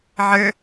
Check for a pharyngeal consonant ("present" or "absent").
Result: present